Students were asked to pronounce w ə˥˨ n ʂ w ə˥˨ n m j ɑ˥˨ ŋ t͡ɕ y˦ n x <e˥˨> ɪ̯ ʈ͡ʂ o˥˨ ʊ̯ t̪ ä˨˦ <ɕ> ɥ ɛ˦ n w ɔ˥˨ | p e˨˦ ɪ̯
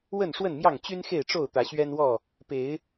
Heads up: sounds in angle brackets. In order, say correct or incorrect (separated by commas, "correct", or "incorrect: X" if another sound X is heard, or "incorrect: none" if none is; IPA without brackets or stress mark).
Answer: correct, correct